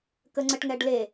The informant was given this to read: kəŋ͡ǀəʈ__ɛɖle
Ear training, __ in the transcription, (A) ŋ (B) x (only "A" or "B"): A